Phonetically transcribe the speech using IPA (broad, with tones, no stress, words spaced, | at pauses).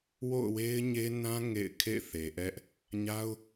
wo̰˦˨ʊ̯we˦ɪ̯ɲe˦nã˦ ŋḛ˦˨ɪ̯ kʰḛ˦˨ɪ̯θe˨ʔɛ˦ʔ | ɲa˦ʊ̯